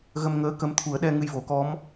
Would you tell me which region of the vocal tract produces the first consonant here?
velum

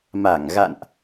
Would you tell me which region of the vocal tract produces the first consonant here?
lips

